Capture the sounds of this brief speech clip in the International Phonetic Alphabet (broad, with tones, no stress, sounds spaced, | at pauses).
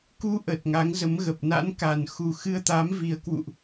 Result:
k u˧ ʔ əː˨˩ t̚ ŋ a˨˦ ŋ z ə˨˦ m ɣ ə˨˩ p̚ n a̰˧˥ n k a˨˩ n x u˨˩ x ɨ˧ ə̯ t̪ a˨˦ m v i˨˩ ə̯ k w ṵ˧˨ ʔ